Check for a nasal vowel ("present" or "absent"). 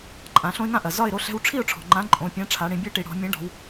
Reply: present